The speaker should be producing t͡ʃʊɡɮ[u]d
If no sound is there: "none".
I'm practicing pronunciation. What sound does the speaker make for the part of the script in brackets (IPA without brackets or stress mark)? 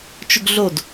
o